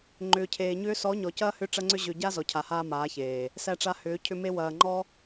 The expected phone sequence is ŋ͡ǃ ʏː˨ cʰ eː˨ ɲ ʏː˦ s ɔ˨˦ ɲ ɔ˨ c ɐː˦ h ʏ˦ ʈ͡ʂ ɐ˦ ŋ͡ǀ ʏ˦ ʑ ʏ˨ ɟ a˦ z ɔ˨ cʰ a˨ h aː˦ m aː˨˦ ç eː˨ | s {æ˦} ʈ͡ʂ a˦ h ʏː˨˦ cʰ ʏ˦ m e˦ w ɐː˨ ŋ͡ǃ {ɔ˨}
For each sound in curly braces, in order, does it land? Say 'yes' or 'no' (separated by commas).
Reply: yes, no